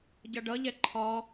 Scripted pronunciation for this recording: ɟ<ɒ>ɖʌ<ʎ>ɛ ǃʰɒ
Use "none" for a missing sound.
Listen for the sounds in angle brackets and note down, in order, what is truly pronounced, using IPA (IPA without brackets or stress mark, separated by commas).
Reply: ʌ, ʎ